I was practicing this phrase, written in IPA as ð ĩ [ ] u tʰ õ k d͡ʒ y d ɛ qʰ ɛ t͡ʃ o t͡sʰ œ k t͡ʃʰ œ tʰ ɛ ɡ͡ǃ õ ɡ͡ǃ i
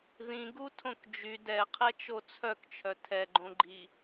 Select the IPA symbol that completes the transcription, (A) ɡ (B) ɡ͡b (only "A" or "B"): A